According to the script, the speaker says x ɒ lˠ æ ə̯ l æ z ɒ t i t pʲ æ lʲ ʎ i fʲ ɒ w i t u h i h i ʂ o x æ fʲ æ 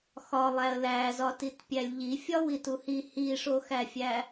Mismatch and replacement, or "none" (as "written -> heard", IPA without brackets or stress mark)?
none